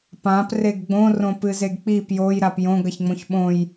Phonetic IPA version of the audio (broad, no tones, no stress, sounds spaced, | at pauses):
p ã p r e ɡ ɡ͡b õ r õ p ɨ z e ɡ k͡p i p j o j ɾ a p j õ ɡ ɐ ç ŋ͡m õ ç ɓ õ j